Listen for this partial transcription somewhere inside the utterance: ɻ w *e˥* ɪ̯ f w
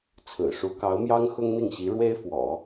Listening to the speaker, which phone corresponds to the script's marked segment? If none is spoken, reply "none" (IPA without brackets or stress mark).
e˥